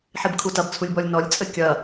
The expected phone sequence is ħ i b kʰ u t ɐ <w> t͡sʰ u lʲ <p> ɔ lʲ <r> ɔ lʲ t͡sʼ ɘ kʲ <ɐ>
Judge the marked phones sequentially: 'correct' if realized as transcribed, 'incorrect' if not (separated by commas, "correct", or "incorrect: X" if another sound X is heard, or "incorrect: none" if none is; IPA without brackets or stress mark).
incorrect: b, incorrect: b, incorrect: n, correct